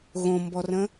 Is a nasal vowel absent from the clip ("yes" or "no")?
no